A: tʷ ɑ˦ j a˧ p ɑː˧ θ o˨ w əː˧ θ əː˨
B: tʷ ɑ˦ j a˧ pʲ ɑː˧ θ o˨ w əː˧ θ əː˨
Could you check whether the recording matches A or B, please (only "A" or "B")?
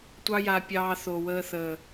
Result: B